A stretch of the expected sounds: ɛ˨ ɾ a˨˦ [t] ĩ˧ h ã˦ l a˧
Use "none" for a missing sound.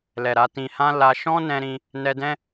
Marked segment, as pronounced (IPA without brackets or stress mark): t